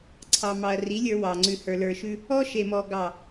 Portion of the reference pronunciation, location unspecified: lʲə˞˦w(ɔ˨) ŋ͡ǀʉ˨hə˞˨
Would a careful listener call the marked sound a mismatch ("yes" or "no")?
yes